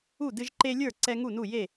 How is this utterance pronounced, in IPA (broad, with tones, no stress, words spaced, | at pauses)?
u˥˨dɨ˦ʒǃe˦lʲə˞˥˨ ǀɛ˦ŋu˥˨nu˥˨ je˥˨